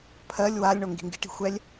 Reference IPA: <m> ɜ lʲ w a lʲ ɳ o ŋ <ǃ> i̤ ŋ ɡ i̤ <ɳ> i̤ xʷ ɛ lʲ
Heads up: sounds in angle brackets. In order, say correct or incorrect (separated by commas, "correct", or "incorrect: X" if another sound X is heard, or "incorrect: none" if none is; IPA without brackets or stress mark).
incorrect: pʰ, incorrect: ɡ, incorrect: ʈ